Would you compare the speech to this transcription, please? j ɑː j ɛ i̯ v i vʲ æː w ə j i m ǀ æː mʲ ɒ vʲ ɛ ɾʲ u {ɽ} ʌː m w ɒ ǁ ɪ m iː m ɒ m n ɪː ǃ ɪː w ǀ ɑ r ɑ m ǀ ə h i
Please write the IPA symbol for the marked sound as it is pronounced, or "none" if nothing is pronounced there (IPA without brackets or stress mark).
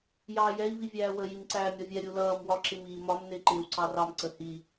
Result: l